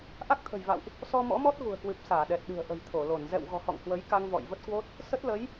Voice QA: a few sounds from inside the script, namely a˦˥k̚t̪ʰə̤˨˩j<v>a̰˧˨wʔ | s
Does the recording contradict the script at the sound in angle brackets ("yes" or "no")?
no